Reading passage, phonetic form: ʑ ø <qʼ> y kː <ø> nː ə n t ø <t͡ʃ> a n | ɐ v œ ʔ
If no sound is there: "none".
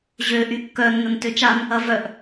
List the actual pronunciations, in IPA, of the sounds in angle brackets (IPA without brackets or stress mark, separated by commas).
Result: ʔ, œ, t͡ʃ